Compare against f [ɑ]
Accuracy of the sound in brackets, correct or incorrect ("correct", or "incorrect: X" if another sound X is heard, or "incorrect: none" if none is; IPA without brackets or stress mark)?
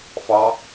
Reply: correct